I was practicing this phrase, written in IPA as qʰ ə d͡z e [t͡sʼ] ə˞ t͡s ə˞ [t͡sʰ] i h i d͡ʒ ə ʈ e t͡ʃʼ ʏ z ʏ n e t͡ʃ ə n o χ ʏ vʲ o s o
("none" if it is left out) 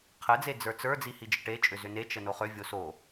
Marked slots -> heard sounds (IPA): d͡z, d͡z

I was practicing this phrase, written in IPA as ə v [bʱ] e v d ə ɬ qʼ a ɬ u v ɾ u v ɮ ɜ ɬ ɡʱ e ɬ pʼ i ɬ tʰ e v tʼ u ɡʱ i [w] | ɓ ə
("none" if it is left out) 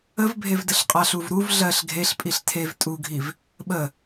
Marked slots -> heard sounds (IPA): bʱ, v

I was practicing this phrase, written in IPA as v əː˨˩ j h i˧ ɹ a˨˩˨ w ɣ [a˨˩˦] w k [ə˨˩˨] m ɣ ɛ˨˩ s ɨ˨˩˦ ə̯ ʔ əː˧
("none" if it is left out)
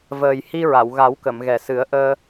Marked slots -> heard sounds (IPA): a˨˩˦, ə˨˩˨

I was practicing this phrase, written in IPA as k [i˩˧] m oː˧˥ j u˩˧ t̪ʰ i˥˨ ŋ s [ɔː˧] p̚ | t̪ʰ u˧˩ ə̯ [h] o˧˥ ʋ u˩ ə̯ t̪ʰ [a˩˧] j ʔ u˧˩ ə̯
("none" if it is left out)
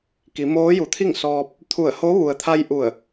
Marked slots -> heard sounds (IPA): i˩˧, ɔː˧, h, a˧

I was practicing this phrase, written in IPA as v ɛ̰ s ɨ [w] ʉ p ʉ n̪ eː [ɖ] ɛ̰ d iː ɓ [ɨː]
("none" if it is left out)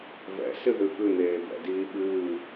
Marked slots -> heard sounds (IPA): ð, b, ɨː

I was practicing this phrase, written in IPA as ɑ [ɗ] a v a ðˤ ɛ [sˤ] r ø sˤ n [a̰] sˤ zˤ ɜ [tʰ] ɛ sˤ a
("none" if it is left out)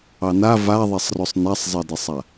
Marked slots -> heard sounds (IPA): n, sˤ, a, d

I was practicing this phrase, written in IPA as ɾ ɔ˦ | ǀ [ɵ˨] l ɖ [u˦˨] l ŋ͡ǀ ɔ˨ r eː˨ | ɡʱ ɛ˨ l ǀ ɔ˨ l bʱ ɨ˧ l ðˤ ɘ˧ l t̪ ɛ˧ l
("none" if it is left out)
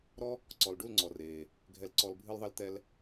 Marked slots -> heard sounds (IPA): ɔ˨, u˦˨

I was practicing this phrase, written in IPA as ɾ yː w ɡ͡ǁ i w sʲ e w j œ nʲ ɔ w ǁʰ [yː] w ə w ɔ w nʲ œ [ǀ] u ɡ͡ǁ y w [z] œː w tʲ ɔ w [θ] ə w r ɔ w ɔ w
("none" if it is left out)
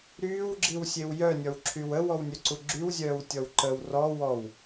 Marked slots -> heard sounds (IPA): y, ǀ, zʲ, ǃ

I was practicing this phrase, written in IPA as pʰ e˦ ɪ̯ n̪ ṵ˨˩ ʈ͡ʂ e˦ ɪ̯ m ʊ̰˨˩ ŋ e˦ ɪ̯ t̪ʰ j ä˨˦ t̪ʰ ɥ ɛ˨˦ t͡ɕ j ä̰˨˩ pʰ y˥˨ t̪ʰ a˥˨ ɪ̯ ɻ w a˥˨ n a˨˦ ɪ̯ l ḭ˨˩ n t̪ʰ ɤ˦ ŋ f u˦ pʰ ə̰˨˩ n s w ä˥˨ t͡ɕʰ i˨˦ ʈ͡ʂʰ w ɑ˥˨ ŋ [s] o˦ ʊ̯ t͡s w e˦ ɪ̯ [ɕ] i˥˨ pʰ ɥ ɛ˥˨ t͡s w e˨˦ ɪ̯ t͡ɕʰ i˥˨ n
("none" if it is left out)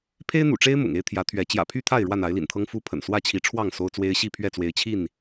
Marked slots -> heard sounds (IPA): s, ɕ

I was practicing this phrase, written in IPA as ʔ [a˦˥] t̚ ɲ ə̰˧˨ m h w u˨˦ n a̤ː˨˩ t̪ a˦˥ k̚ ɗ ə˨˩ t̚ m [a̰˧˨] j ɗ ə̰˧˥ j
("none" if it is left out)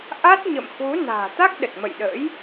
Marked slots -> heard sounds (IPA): a˦˥, ə̰˧˨

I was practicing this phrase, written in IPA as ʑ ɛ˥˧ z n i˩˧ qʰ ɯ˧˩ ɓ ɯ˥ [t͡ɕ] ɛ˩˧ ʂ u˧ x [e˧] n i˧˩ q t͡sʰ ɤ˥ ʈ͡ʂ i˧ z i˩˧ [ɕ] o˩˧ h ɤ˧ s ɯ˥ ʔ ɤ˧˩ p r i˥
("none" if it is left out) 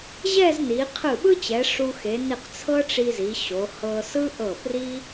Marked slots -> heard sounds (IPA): t͡ɕ, e˩˧, ɕ

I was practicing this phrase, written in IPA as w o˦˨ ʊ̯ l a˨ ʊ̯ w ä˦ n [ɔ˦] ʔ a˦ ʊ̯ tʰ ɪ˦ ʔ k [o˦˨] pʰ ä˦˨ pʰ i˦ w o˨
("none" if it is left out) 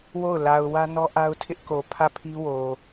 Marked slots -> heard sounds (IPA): ɔ˦, o˨

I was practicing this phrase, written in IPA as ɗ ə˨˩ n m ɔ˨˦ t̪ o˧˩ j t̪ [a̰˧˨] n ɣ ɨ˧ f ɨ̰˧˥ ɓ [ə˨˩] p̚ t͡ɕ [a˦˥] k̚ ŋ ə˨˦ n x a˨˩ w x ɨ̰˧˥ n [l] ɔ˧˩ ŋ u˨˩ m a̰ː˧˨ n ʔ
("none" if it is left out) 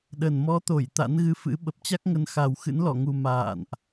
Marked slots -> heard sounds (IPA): a̰˧˥, ə˨˩, a˦˥, l

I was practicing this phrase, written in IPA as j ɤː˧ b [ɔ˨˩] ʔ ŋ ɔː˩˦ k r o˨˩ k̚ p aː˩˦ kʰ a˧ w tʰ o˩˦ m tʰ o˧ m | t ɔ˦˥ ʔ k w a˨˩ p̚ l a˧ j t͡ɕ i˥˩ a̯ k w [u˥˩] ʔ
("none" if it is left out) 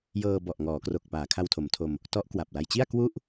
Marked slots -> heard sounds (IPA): ɔ˨˩, u˥˩

